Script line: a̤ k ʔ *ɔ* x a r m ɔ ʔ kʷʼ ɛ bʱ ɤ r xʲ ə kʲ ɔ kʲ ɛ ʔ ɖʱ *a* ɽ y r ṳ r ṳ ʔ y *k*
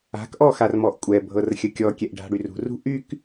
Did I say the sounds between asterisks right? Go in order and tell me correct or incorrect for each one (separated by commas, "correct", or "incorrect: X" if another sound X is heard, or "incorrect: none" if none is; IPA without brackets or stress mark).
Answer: correct, incorrect: a̤, correct